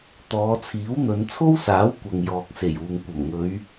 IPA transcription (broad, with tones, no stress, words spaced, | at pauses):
t̪ɔː˨˧t͡sʰiː˨˥w n̪ɵ˨˧nt͡sʰo˥wsaː˨˥w kʷɐ˨ŋjɔː˨k̚ se˨˩juː˨ŋ kʷɐ˨˩mŋɵ˨˧ɥ